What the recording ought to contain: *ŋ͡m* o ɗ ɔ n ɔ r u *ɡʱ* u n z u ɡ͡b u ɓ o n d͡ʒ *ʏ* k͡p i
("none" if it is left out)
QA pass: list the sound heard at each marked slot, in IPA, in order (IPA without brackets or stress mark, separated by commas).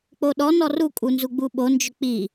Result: k͡p, kʼ, ʏ